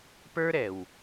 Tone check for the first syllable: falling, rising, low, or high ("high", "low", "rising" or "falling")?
high